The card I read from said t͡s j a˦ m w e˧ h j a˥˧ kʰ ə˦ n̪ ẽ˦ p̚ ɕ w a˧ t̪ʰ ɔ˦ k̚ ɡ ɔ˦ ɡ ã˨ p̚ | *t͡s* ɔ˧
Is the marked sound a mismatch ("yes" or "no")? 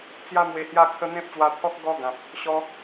yes